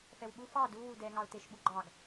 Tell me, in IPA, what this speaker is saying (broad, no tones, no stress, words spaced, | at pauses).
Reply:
fɛwɓu fɑ du wudɛ ŋɑʊ̯teʃɓu ɡ͡ǃɑɡ